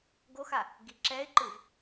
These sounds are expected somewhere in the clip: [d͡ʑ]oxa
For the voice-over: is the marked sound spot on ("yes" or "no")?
no